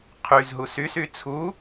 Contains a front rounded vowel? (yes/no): yes